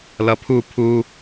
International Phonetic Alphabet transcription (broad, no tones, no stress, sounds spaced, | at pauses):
l ʌ pʰ u pʰ u